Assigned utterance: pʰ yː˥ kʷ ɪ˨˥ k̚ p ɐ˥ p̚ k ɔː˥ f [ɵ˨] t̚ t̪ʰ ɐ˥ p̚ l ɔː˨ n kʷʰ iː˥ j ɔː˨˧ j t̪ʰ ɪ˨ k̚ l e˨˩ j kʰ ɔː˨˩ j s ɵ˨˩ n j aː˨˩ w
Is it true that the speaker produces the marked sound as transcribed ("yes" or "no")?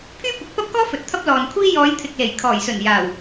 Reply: yes